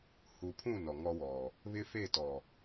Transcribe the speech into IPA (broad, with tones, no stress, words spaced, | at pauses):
hu˨pʰũ˦˨ nɔ˨ŋɔ˦wɔ˨ | βɪ˦fe˦˨tɔ˨